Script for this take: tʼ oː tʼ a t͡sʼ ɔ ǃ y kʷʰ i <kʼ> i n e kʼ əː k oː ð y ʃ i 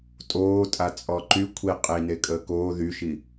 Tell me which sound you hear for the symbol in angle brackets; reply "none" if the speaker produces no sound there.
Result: qʼ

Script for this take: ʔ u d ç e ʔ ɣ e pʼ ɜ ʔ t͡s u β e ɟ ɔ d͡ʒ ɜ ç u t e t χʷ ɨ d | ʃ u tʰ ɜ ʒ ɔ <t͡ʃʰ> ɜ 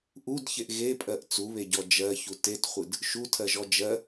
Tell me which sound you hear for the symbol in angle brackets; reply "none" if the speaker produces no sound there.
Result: d͡ʒ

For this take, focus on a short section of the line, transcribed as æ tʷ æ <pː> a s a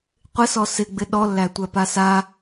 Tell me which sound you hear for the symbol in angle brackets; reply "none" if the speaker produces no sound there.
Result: p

